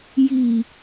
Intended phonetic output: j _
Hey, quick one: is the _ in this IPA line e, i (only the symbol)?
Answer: i